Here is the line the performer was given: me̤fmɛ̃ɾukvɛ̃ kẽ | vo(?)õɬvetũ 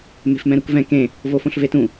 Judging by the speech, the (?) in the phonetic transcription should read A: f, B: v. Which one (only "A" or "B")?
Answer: A